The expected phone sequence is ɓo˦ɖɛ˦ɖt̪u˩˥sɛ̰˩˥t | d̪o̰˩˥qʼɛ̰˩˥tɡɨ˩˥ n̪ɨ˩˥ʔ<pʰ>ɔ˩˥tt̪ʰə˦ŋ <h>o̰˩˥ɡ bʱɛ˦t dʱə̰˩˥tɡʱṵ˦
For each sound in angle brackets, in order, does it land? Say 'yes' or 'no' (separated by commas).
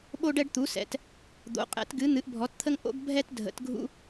no, no